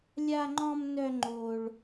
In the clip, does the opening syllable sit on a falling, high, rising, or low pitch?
high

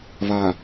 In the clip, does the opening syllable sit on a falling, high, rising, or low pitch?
low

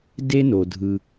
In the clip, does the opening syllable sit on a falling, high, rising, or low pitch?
high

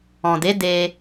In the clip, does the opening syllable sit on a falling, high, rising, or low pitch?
low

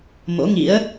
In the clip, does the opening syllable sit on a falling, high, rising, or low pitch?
rising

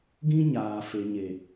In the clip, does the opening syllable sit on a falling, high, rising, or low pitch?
high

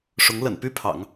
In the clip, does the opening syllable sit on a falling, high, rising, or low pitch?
rising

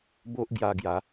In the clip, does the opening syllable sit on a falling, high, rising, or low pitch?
high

